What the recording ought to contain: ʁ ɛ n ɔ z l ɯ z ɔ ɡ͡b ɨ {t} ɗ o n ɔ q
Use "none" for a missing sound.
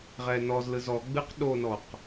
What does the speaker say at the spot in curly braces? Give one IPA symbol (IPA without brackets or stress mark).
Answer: q